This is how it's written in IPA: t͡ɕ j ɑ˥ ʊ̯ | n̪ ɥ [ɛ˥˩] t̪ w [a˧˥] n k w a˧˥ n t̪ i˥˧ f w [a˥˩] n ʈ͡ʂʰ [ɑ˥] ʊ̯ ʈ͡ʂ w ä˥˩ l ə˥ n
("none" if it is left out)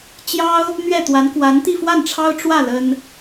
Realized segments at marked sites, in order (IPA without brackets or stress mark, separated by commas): ɛ˥˩, a˧˥, a˥˩, ɑ˥